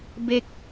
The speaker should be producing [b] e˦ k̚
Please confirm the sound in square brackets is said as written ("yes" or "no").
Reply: yes